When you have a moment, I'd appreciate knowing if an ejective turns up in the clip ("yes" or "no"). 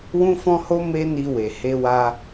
no